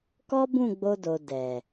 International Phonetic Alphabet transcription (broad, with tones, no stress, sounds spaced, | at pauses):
k ɔ˦ b ũ˦˨ ɡ͡b o˧ d o˨ d ɛ˨